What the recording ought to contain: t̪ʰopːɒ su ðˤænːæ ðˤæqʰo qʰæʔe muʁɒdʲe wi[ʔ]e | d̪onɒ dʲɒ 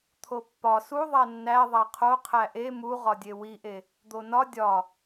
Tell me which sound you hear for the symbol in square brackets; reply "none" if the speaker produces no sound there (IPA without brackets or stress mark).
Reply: ʔ